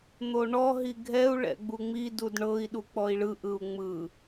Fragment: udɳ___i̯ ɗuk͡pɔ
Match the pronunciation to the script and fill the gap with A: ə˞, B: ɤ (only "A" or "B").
B